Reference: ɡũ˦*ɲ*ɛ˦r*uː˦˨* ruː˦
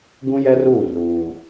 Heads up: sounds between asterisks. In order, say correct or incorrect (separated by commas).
incorrect, correct